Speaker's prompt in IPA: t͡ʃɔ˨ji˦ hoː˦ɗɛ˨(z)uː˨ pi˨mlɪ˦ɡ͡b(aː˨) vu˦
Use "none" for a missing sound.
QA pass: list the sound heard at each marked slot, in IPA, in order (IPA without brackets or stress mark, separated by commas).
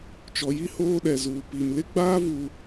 z, aː˦